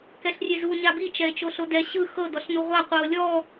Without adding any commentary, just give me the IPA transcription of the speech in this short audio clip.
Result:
k ɛ ɬ rʲ e z u ɲ a b i t͡ʃ ɛ e̯ t͡ʃ o ɬ o d ɛ ɕ ɯ x ɤ d ɔ ɬ n u ʁʷ a qʷ ɯ o̯ lʲ ɔ

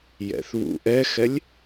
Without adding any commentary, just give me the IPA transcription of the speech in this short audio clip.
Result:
j ɛ̰ θ β ṵ ʔ ɛ x ɛ lʲ

